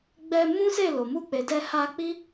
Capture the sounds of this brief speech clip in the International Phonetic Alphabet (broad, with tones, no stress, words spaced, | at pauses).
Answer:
ɡ͡bɛ˧ mũ˦se˦˨lo˨ mu˧k͡pe˨ dɛ˧ ha˧k͡pi˦